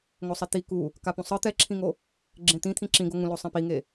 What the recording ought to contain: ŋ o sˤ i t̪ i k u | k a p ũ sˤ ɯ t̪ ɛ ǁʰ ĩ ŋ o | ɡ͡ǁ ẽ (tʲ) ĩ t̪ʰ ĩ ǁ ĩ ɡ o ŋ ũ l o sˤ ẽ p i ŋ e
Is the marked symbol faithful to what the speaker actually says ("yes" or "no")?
no